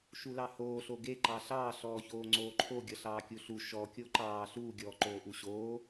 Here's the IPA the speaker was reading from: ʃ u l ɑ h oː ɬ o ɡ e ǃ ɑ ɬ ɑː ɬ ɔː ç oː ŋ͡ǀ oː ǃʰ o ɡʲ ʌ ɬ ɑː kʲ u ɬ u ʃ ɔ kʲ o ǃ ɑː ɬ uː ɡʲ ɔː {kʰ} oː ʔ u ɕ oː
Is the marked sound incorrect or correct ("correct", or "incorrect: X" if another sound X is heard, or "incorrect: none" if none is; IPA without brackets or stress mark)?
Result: incorrect: ǃ